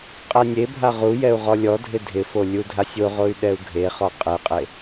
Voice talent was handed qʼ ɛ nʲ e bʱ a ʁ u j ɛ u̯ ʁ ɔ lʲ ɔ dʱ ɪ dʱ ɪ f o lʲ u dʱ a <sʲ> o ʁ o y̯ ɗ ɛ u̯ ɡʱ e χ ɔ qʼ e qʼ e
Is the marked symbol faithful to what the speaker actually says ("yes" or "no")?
yes